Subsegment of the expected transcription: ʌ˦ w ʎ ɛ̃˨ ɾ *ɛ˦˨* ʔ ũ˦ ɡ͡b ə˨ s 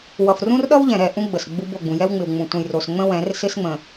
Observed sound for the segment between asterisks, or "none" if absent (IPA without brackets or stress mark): ɛ˦˨